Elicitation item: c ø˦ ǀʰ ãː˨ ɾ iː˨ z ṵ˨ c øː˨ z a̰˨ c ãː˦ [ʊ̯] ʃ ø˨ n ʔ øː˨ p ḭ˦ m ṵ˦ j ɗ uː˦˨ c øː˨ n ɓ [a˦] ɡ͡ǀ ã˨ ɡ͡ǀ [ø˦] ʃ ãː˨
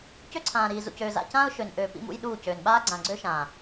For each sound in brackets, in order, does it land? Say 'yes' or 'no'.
yes, no, yes

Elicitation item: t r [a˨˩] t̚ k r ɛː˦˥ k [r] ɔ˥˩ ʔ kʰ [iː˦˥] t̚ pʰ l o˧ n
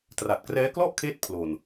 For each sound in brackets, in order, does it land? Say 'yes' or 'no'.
yes, no, no

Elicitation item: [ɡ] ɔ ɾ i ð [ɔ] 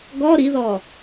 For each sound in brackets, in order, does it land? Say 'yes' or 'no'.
yes, yes

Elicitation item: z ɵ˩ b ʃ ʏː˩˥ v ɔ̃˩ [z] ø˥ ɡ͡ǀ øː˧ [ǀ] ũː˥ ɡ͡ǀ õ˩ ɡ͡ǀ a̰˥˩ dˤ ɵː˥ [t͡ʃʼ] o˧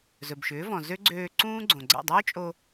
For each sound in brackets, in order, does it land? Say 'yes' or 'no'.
yes, yes, yes

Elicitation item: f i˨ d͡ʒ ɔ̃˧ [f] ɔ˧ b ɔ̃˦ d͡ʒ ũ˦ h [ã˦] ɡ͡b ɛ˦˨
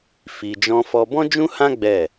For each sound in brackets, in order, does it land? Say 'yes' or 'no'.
yes, yes

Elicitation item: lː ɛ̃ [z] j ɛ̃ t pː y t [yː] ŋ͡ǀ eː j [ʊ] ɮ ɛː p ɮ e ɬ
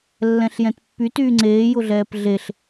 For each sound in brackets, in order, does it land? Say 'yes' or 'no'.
no, yes, yes

